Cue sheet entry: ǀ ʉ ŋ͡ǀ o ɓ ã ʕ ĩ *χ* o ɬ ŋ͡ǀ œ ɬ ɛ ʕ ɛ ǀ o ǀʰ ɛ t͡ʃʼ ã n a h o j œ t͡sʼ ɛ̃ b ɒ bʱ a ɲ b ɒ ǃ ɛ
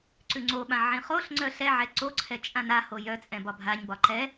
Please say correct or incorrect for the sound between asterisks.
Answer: correct